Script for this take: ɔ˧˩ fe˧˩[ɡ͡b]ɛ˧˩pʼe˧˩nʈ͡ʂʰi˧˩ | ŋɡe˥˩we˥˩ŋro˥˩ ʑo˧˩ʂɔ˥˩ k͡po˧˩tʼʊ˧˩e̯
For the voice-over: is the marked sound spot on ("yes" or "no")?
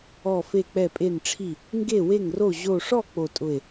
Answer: no